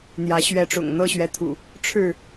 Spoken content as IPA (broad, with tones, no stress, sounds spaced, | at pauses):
n̪ j ä˨˦ ɕ ɥ ɛ˨˦ ʈ͡ʂ ʊ̰˨˩ ŋ n̪ ɤ˥˨ ɕ ɥ ɛ˨˦ t̪ʰ ṵ˨˩ | ʈ͡ʂʰ ɻ̩˥˨